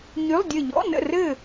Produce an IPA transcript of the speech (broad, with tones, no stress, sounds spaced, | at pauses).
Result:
ɲ y˧˥˧ lˠ dʲ ə˦˨ ʎ ɔ̰˧˥˧ n ə̰˦˨ r ɘ˦˨